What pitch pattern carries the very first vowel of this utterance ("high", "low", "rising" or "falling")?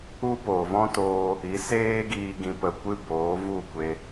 high